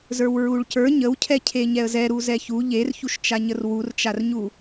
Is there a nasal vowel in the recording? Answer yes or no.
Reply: no